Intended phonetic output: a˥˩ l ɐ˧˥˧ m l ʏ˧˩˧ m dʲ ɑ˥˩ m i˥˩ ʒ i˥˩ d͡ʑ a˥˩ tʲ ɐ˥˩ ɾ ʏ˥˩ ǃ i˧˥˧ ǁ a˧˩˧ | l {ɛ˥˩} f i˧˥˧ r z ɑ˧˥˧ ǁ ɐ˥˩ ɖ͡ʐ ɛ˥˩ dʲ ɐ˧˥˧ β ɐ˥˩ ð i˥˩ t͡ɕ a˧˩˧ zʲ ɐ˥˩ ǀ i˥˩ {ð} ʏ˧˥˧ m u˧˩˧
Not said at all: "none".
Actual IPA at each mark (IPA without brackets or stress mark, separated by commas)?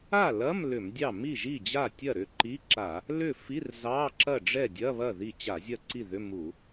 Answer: ʏ˥˩, ð